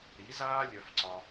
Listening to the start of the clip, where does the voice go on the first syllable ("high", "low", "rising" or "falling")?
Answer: rising